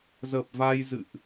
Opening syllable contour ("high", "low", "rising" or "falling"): low